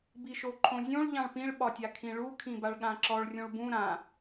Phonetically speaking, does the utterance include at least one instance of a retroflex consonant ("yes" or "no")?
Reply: yes